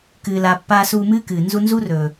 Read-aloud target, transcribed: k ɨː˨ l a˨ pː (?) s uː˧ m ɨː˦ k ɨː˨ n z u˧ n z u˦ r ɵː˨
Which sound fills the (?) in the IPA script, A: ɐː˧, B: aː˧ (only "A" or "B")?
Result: B